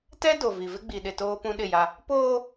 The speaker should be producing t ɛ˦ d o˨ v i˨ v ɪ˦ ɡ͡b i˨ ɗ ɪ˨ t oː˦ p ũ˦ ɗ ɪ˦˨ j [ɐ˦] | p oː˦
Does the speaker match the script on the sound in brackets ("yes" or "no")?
no